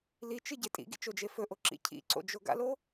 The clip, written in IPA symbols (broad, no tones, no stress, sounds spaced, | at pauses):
l i t͡ʃ ɨ ɟ e tʼ ḭ ɡ ḭ t͡ʃ o d͡ʒ e f ɵ ʔ o ǁ ḭ cʰ ḭ ǀ o̰ d͡ʒ o ɡ a̰ l o